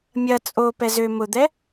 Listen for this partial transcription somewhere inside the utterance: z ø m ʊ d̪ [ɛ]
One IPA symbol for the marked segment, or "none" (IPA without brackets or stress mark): ɛ